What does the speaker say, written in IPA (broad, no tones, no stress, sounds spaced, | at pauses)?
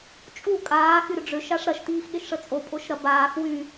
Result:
t͡ʃʼ u kʼ aː x y ɾ ʏ ɖ͡ʐ ø ʃ a ʂ ɾ ɐ ʃ t iː x ɠ e ʃ ʂ ə t͡sʼ o pʼ o ʃ ɾ ɐ b aː x w y